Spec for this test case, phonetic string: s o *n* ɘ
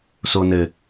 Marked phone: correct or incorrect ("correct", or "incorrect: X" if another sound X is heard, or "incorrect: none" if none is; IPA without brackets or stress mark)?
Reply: correct